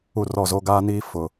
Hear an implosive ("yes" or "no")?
no